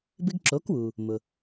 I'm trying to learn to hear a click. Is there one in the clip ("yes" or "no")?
yes